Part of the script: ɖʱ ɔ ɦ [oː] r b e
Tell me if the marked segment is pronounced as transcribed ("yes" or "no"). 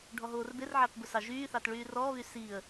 yes